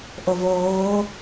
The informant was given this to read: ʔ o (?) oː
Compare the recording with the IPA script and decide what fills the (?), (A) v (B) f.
A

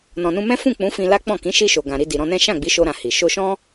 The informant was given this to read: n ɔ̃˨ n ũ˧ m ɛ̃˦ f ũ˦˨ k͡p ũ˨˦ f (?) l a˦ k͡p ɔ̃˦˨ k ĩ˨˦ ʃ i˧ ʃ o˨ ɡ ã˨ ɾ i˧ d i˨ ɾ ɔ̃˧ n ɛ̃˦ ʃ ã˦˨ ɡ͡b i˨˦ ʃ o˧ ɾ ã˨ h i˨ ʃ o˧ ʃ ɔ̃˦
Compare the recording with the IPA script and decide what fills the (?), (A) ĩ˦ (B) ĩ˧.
B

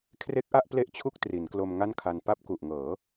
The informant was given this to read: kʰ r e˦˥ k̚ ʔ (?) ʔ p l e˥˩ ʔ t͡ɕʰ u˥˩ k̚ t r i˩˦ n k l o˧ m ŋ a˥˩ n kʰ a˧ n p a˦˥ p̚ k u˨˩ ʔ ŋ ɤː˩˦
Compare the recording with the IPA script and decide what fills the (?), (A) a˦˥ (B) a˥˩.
B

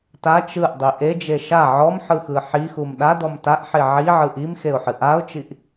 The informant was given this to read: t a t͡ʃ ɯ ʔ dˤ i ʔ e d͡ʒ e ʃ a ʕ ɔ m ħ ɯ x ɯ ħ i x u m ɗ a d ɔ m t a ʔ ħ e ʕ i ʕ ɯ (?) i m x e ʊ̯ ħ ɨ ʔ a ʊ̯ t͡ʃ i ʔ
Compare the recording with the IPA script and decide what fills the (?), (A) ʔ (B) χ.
A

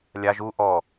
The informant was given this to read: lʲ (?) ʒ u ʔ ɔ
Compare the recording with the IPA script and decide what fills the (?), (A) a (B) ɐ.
A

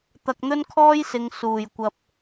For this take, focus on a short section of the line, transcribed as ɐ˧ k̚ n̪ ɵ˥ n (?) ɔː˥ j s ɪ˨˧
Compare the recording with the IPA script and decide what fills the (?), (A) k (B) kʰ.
B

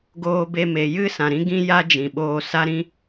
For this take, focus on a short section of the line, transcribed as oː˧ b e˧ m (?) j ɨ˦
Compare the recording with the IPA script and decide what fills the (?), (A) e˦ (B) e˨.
B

